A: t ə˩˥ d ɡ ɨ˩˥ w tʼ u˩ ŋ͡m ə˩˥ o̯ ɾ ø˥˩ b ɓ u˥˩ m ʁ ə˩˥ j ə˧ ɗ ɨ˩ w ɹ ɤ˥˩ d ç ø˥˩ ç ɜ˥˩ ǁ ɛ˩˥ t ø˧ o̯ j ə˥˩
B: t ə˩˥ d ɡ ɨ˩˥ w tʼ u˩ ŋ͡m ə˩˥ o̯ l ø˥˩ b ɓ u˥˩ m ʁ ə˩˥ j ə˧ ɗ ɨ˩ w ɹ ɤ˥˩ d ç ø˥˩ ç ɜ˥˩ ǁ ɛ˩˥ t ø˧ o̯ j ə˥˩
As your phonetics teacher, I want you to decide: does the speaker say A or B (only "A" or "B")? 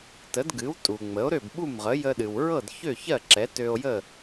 A